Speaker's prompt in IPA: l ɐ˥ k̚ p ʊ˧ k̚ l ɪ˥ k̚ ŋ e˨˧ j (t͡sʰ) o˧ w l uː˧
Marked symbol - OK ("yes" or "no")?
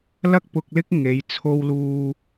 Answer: yes